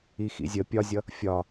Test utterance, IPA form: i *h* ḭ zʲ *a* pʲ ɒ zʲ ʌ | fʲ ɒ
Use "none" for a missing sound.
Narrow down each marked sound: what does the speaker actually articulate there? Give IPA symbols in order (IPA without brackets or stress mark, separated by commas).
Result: x, ə